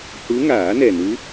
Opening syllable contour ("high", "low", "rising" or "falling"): rising